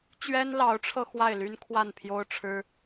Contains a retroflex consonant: yes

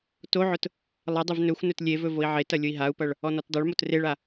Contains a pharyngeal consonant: yes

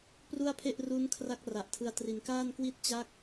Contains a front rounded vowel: no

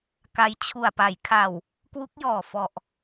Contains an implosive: no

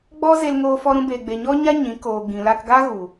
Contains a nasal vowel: yes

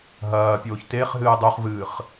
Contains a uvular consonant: yes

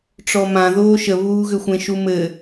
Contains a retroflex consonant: yes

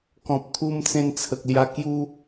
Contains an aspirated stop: yes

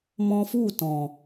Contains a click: no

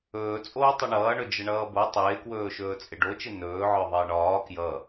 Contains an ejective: yes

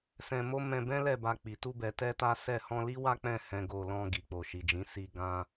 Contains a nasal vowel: yes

